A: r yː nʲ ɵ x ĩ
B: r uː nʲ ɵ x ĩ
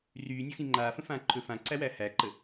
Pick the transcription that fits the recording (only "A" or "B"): A